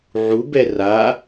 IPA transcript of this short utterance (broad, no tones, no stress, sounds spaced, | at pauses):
ʕ u b ɛ r a